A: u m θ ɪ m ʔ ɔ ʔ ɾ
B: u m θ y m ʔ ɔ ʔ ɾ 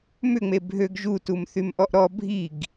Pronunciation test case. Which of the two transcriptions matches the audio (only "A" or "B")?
B